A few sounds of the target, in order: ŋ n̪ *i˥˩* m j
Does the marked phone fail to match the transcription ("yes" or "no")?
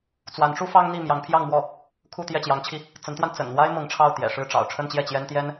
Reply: no